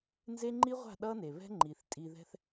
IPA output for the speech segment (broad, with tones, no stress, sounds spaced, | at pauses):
n z e˦ ŋ͡ǃ i˦ ʁʷ a̤˦˨ ɗ ʌ˦ n e˨ β ɛ̤˦ ŋ͡ǃ i˨ θ tʼ i˧ ð ɛ̤˦ θ